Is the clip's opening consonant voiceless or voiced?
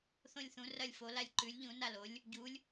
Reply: voiceless